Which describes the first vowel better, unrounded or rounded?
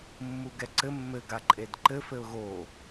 rounded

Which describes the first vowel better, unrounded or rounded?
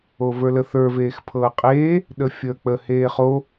rounded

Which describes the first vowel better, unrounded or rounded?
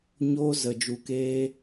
rounded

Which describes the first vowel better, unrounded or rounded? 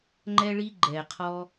unrounded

